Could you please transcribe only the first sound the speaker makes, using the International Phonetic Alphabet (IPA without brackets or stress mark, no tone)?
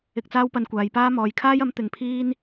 ɪ